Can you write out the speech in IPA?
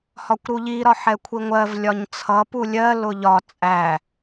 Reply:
hɒkʷɾuʎi ɾɒħɛkʷʰiŋʷɜv lʲɒɲt͡sʰʌ pulʲɜ lʊʎɒ t͡sʼæ

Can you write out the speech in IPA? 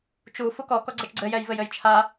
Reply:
t͡ʃu fukɔ kɔɡ͡ǀɛt͡ʃɡ͡ǀɘ jɛjvɘjɘjt͡ʃʰa

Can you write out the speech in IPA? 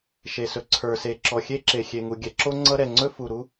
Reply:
ʃe˩sɵ˩ ǀʰə˞˩se˩ ǁɔ˩xʲe˥ǁe˩ xʲe˩ŋu˩ɡʲɛ˩ǁo˥ ŋ͡ǀʌ˥ ɾɛ˩ŋ͡ǀɵ˥ fu˩ɾu˥

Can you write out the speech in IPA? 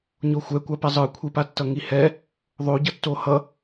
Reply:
ɲoxʷɛkʷapɛ zˤɯkʷʰipatːʌ ŋihɛ | ðˤoɟʌ tːohʌ

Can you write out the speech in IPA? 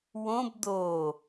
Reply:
wõb d̪o

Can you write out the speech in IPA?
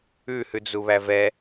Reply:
ʉ hʉd͡zuβævɛ

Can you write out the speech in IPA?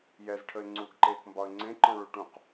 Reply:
jɛzʈʰəɪ̯ ŋ͡ǀuɡǃeːkmbɒə̯ ŋ͡ǀẽǃɔ̃ɭu ʈũq

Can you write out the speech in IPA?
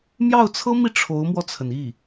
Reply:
mjɑ˥˩ʊ̯t͡sʰɤ˥mi˥˩ ʈ͡ʂʰo˧˥ʊ̯mwɔ˧t͡sʰə˩ni˥˩

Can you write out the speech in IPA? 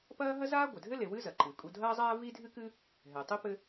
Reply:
pɐː˥ ɦɐ˥zaː˥ɡʷɘ˩dʱɘ˥ le˨wɨ˥zɐ˩ ǃɨ˩ kʼu˨dʱɐː˦zˤaː˦ vi˦dʱɨ˦kɨ˦ | ɦɛ˩tˤe˥pɘ˦

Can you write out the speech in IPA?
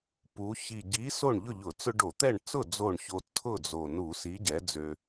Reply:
pu˩˧ çi˨˩ ɟi˨˥ so˥˨ɳʎʊ˥˨ʎʊ˧˩˧t͡sʊ˦ ɖo˧˩˧t̪ɛ˥˨ɳ t͡sʊ˥˨ d͡zo˥˨ɳço˦ tʰʊ˥˨d͡zo˨˩ nu˧˩˧si˨˥ ɟɛ˨˥d͡zø˦

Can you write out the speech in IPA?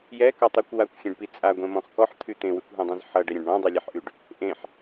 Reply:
jɛkɔtˤɛkʷ wakʷxʲẽɖpi t͡sʼaɡʷɛ̃mɔ̃χ kɔħt̪ʰy t̪ẽwykʷɦẽdˤɛ̃z ħʌɖɛɾʲɛ̃ɖ ɳɔ̃dˤylʲɛħʔyɖ | ʔẽħ

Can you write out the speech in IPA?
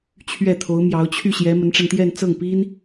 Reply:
t͡ɕʰɥɛ˥˩t̪ʰo˧˥ʊ̯mjɑ˧˥ʊ̯ t͡ɕʰy˥˩ɕjɛ˧˥ mə˧˥nʈ͡ʂa˧nt̪jɛ˥˧n t͡sɤ˥˩ŋpi˥n

